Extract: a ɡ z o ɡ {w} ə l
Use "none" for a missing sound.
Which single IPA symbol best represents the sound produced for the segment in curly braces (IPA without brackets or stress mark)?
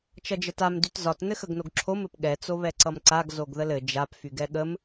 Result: ð